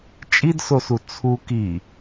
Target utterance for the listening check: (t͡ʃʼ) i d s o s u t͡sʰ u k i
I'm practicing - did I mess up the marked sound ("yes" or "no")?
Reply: no